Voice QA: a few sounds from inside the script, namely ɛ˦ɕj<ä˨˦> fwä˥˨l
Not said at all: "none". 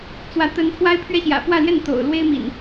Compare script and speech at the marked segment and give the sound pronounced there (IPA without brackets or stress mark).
ä̰˨˩